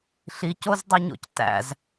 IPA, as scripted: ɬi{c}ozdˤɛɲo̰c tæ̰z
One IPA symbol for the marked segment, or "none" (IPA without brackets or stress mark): c